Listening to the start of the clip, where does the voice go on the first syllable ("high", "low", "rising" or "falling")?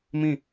falling